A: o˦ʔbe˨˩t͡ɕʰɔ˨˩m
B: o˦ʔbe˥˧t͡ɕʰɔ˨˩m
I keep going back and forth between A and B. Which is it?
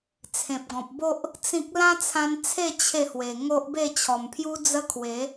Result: B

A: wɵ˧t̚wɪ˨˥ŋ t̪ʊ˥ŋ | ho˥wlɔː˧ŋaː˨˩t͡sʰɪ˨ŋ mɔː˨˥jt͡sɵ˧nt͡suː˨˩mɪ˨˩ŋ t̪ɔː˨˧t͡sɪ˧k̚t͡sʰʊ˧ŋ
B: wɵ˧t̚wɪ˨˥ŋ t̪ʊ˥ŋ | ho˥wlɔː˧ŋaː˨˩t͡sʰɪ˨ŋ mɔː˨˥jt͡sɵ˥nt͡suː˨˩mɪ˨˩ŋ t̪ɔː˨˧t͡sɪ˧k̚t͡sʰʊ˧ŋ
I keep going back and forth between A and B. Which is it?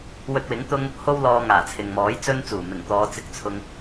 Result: B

